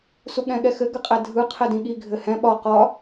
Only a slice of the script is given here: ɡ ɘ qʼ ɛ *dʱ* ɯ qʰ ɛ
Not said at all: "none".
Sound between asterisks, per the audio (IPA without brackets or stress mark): dʱ